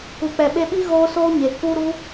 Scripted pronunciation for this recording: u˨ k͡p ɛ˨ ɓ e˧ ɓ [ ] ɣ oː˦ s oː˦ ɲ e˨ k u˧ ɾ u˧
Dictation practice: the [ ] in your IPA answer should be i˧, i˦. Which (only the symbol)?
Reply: i˦